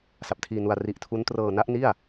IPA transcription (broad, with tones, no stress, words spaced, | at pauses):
sa˨˩p̚tʰiː˧nu˧a̯ ri˨˩ʔ tʰu˦˥n trɤː˧na˦˥ʔni˥˩a̯